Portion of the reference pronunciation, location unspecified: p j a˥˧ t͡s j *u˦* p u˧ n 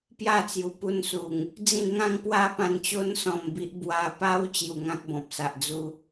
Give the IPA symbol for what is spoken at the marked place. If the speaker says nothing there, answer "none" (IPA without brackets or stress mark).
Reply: u˨˩